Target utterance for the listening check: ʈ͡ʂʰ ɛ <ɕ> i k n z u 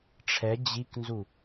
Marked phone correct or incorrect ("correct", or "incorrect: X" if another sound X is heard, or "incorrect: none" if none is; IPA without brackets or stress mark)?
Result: incorrect: d͡ʑ